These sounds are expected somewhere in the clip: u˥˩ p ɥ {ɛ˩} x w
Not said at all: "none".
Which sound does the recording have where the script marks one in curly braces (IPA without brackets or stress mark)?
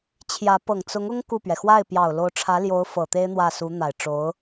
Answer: ɛ˩